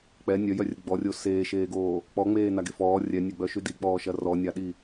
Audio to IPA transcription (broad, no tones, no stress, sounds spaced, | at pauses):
k͡p ɛ nʲ œ j œ rʲ ə ɡ͡b ɔ rʲ o s eː ʃ eː ɡ oː | k͡p ɔ ŋ͡m eː n a ɡ e f ɔː rʲ ɛ nʲ ɛ ɡ͡b œ ʃ y d i k͡p ɔː ʃ ɐ r ɔ nʲ a ɗ i